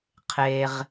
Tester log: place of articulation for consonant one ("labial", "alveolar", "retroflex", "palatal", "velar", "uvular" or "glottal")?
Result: uvular